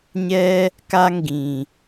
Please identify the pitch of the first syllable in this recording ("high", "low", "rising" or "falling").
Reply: high